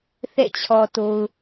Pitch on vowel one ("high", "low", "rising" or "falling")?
falling